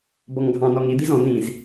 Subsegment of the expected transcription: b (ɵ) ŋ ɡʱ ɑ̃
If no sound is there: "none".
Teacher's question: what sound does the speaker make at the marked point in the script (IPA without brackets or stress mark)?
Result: ɔ